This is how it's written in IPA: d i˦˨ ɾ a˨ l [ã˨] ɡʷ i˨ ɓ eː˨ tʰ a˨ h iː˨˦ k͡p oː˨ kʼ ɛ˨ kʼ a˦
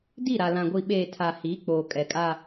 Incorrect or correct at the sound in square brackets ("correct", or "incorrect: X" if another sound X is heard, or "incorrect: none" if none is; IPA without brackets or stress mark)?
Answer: correct